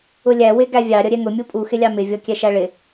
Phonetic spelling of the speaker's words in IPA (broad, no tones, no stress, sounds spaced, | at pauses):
ʊ lʲ æ w ɪ ɡ æ vʲ ɑ ɾʲ ʌ ɾʲ ɛ ŋ ʊ mʲ u pʼ u x ɪ lʲ ɑ m ɪ vʲ ɔ kʲ ɛ ʃ æ ɭ ɪ